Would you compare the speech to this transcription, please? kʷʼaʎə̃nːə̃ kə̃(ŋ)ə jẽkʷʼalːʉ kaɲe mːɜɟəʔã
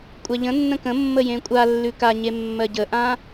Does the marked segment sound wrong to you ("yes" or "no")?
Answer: yes